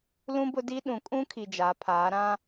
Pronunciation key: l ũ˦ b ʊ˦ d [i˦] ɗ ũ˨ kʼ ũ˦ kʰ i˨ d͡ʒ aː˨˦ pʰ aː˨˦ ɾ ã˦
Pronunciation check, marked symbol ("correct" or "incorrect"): correct